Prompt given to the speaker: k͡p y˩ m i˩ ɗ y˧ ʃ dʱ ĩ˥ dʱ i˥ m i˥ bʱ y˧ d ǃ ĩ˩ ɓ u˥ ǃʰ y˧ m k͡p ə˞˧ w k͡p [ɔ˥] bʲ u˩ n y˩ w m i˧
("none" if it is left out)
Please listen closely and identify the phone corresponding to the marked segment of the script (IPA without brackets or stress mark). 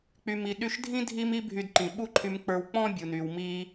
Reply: ɔ̃˥